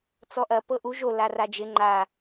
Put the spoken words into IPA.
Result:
t͡s ɔ ʔ ɐ p ɤ ʔ u ʒ o l a r a d͡ʒ ɪ ŋ͡ǃ a

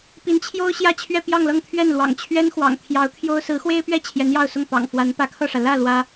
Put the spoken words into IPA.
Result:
p i˧˥ n t͡ɕʰ j o˥ ʊ̯ ɕ j ä˥˧ t͡ɕʰ ɥ ɛ˥˧ p j ɑ˥˧ ŋ l ɤ˥˧ ŋ t̪ʰ ɥ ɛ˥˩ n l w ɑ̰˨˩ ŋ t͡ɕʰ ɥ ɛ˥ n x w ɑ̰˨˩ ŋ t̪ʰ j ɑ˧˥ ʊ̯ t̪ʰ j o˥ ʊ̯ s ɹ̩˧˥ x w e˥ ɪ̯ p ɥ ɛ˥˩ t͡ɕʰ j ɛ˧˥ n j ɑ˥˧ ʊ̯ s ʊ˥˩ ŋ p ɑ̰˨˩ ŋ f w a˧˥ n p ä˧˥ kʰ ɤ˥˩ ʂ ä˩ l ä˥˩ l w ä˥

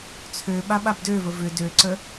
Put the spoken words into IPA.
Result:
t͡sʰ ø ɓ a ɓ a b d ø v ə v ʏ d ø ǀ ə

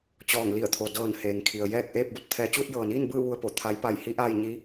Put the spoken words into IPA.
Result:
t͡ɕ ɔː˧˩ ŋ l i˧˩ ə̯ t̪ʰ o˩ d ɤː˧˩ n h eː˩ ŋ kʰ i˩ ə̯ j ɛː˥˨ k̚ ʔ eː˥˨ p̚ b o˧ t̚ t̪ʰ ɛː˧ t͡ɕ uː˥˨ t̚ j ɤː˩ n iː˥˨ n b ɯː˥˨ ʋ u˧ ə̯ p o˧˩ t̪ʰ a˧˥ j p a˧˩ j h i˧˥ ʔ aː˧ j ɲ i˧˥

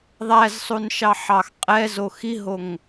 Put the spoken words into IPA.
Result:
ðˤ æ z sˤ u n ʃ ɑ ħ ɑ x qʼ ɛ z o x i ɦ o ŋ

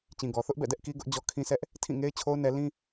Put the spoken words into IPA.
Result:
t͡ɕ ĩ˨ ɡ ɔ˨ θ ʊ˦ ʔ b ɛ̰˦˨ d ɛ˦ ʔ k i˦ ɡ ʊ˦ ʔ d͡ʑ ɔ˦ kʰ ĩ˦ s ɛ˦ ʔ | tʰ ĩ˦˨ ŋ e˦ ɪ̯ t͡ɕʰ o˦ ʊ̯ n ɛ˦ l ĩ˦

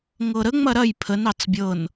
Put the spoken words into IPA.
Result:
ŋ ɤ ɾ ə ŋ͡m ɐ ɾ ɐ j pʰ ə n ɑ t͡s bʲ ɤ n

